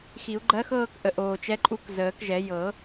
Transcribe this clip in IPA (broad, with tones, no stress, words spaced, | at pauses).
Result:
xi˨˩˦u̯ɡ͡ǃɜ˧˥xɤː˥˧k ʔə˨˩ ʔoː˨˩t͡ʃɛ˧˥ǃʼu˧˥k zəː˨˩˦kʒɛ˨˩˦ jɤ˨˩˦